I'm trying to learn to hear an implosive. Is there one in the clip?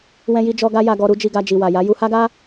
no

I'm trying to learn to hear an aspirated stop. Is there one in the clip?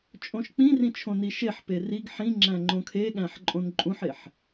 yes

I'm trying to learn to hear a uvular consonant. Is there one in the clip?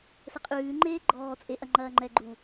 yes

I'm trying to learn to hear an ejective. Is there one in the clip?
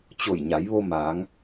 no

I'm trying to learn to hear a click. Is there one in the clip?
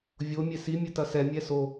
no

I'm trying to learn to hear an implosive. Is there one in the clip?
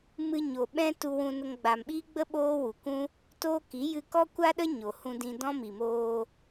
yes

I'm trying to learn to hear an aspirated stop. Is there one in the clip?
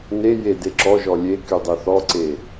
no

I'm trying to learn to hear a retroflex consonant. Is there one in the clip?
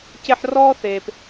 no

